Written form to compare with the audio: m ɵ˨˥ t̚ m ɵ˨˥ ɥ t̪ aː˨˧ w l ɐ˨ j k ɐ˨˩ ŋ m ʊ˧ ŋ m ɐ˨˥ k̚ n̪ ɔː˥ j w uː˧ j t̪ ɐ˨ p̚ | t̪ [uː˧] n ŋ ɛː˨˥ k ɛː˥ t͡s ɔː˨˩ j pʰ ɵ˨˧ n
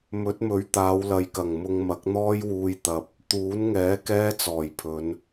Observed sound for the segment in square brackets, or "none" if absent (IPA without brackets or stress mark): uː˨˥